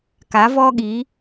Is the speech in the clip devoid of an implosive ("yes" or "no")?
no